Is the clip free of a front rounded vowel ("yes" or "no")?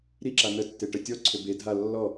no